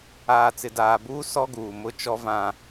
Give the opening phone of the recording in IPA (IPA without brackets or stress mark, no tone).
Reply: aː